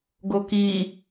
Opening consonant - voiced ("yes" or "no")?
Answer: yes